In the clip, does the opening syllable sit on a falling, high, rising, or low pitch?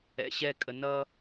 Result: low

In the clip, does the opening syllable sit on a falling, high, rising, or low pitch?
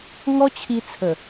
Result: high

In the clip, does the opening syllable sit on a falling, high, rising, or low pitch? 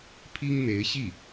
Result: high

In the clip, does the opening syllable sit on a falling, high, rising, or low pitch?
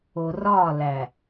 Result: low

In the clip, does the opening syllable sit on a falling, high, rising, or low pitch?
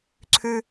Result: high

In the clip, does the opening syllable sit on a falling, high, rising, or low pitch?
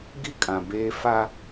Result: high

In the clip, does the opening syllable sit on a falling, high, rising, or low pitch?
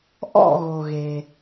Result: falling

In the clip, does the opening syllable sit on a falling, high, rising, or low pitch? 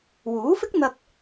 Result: rising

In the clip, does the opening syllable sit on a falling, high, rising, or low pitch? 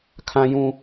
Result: high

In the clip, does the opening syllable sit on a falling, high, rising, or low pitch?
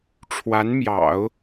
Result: rising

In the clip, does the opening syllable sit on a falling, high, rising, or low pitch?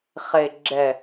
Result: low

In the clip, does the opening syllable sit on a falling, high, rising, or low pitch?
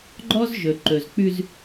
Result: high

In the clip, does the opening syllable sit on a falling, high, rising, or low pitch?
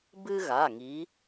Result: high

